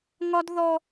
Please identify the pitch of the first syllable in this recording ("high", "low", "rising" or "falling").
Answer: high